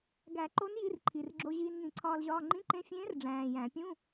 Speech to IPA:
ɡæ˨˩˦ǃo˧˥n ji˧˥˧rǃʰi˨˩rɡ͡ǁo˧ ʑiː˧nŋĩ˨˩˦ǀʰɒː˧lʑɒː˧˥˧ ŋ͡ǃĩ˧˥˧ǃẽ˧˥fʲẽː˧˥r ɖ͡ʐæ̃ː˨˩jæ̃˨˩˦ pʲũ˧˥˧

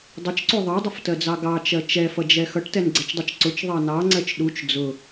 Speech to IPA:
dˤʊt͡ʃǀu ðˤɑdˤʊftɜd͡zɑ ɡɑt͡ʃɜ t͡ʃɛfʌd͡ʒɛ xʌʈtɛnɡ͡ǀɛt͡ʃdˤut͡ʃ ǀʊt͡ʃðˤɑ nɑŋ͡ǀɜt͡ʃ ɗut͡ʃ d͡zʊ

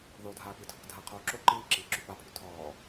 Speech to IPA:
ðodʱaːpitʰok dʱaqʰoː ǁo ǃiːǁiːǁy papʰy tʰɔː

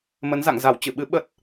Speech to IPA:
mə˨˦nza̰˧˨ŋza˧˩w t͡ɕɨ˧˩ɓɨ˨˦ ɓə˦˥t̚

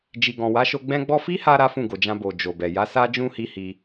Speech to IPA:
d͡ʒi˨ɡɔ̃˨wa˨˦ʃo˧ ɡ͡bɛ̃˦ɡ͡bɔ˦ fi˦ha˧ ɾa˦fũ˦˨ɡo˨d͡ʒã˧ bo˨d͡ʒo˨bɛ˨ ja˨˦sa˦d͡ʒũ˦hi˧ hi˧

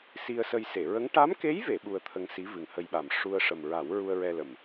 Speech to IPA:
si˧ə̯sə˧j se˨˩˨ɹə˧˥ŋ ʈa˧˥mke˧˥jve˨˩˨ ɓu˧ə̯t̪ʰə˧ŋsi˧˥ vɨ˨˩ŋhə˧jɓa˨˩m ʂu˧ə̯ʂə˨˩m ɹa˨˩˦wɹu˧ə̯ ɹɛ˧lə˨˩m

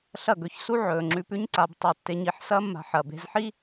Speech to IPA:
ɬɐ˦˨ɡɵ˧çsu˦ ʕɵː˨ŋ͡ǁʉ˧ pʉ˦ɲǀa˧b tˤa˧tːe˧ɲi˧ħ sɐː˦mːa̤˧ ħɐ˨be̤˧zħi˦

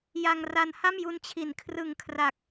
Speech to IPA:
ja˧ŋra˧nha˥˩m ju˧nt͡ɕʰi˩˦nkʰrɯ˨˩ŋ kʰra˨˩k̚

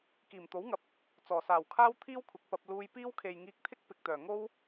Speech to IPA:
kiː˨˩mt̪o˨˥wŋɐ˨p̚ | t͡sɔː˨˩saː˨˩wkʰaː˥wt̪ʰiː˥w kʷʰɪ˨˥k̚pɐ˧p̚ luː˧jpiː˥w kʰe˨jŋiː˧k̚t̪ʰɪ˥k̚ pɪ˨k̚t̪œː˨˩ ŋo˥w

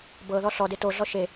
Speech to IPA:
bɤ ðɔɬɔde toɮɔ ʃe

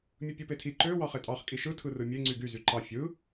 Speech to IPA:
mʲɯpʲupetʰi ǃø wɑχetʼɑχ kʼiʃɯ tʰɯrɯmʲe ŋ͡ǀyɡy zyǃɑ fʲɯ

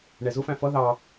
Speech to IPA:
ɳɛzʊfæ̃ fʌ ðɑ

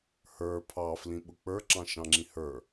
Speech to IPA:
hə˞ pʰɑ flĩɓʊk͡pə˞ ǁɑ̃ʃɑ̃ŋ͡ǁĩhə˞

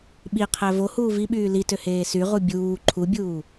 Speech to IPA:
ɓiqʰæ vohuː viɓyː litøheː syʁu bʲuː ǃʰubʲuː

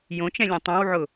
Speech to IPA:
jõt͡ʃɛ̃lʲɛ̃ tˤõwʕʊ

